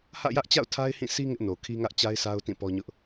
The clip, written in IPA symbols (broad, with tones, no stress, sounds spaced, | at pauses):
h ä̰˦˨ j ä˦ ʔ t͡ɕ a̰˦˨ ʊ̯ tʰ a˦ ɪ̯ h ĩ˦˨ s i˦ ŋ ɪ˦ ʔ n o˨ kʰ i˦ ŋ ä˦ ʔ t͡ɕ a˦ ɪ̯ sʰ a˦ ʊ̯ t ĩ˦˨ p ɔ˦ ɲ ʊ˦ ʔ